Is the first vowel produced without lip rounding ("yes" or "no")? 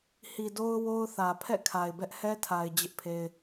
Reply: yes